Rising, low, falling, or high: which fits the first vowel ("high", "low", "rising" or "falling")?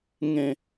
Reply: falling